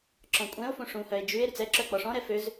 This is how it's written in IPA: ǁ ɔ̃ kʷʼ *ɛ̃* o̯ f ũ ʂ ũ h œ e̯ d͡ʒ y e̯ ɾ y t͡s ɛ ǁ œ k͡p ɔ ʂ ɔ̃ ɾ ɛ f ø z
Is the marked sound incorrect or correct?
correct